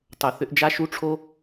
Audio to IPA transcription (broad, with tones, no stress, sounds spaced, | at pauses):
tˤ o˩ θ ʏ˧ ʔ d͡ʒ a˧ ʃ u˧ ʈ͡ʂʰ o˧